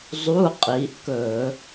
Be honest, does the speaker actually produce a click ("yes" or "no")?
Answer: no